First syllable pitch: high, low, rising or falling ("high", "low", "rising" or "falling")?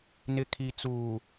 low